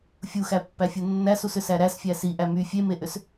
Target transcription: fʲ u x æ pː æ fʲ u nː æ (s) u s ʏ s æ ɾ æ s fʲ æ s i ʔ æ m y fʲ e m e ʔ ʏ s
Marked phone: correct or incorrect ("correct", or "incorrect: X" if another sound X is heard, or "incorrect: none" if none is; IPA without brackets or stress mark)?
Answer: correct